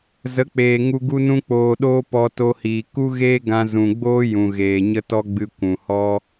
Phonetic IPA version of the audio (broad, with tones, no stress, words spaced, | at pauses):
zə˨˦k͡peː˨ ŋu˧ ɡu˦nũ˦k͡poː˧ɗoː˦ pɔ˧to˧hiː˨ ku˦ɣeː˦ ɡã˧zũ˨ɡ͡boː˦ jũ˨ɣeː˨ ɲə˦tɔ˦ɡ͡bɨ˧ kʷũ˨hɔ˦